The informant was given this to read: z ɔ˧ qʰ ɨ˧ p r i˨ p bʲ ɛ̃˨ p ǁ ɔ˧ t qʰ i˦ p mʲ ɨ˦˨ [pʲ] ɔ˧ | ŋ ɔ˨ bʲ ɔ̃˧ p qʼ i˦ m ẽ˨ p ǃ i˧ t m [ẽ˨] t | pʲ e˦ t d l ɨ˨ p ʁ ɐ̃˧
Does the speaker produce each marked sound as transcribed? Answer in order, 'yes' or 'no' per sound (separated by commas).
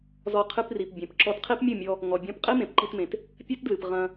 no, yes